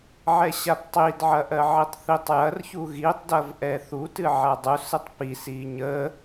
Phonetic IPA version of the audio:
ʕ ɛ ɕ a p tˤ i d ʕ ɐ ʔ ɜ ʕ i tˤ θ i tˤ j ɐ r ç u ɣ i tˤ d ɐ v ʔ ɛ θ u t ɨ ʕ a dˤ u s ɨ tˤ p i s i ɲ ə

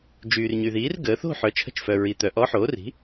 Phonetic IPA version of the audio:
d͡ʒ yː˩ r ɲ y˩ ð iː˩˥ r ɡ əː˩˧ θ o̤˥˨ ħ œ˩˧ t͡ʃʰ ə̤˧˥ t͡ʃ f œ˩ ɹ i˩ t̪ œ˩ ʔ ɔ˧˥ ħ oː˩˥ r i̤˩˥

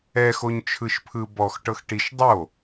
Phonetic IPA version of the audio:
ɛ x o ɲ t͡ʃʰ ɯ ʃ pʰ ɯ b ɔ x ʈ ɤ x ʈ i ʃ dˤ o

